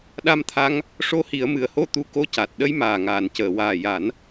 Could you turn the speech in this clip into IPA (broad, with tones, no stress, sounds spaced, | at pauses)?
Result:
ɗ a˧ m t̪ʰ a˧ ŋ | ʂ o˧˥ h i˨˩˦ ə̯ m ɨ˨˩ ə̯ h o˧˥ t̪ u˧˥ k o˧˥ c a˨˩ t̚ ɗ ə˧ j m aː˨˩ ŋ aː˨˩˨ n c əː˨˩˨ w aː˨˩ j a˨˩˦ n